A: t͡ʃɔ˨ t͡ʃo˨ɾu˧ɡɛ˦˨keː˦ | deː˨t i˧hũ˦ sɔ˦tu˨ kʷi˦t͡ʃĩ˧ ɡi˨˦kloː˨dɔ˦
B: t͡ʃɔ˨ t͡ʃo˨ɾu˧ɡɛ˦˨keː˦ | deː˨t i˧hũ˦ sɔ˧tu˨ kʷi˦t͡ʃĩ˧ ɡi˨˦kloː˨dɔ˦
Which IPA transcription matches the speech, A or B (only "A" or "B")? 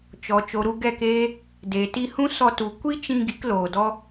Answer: B